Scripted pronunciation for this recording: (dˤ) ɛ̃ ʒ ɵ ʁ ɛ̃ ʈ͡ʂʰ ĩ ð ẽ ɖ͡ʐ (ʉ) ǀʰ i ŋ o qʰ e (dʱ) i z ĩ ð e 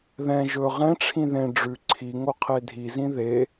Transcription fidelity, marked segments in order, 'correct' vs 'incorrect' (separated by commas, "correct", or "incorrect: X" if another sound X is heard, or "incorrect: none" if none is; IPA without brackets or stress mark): incorrect: ð, correct, correct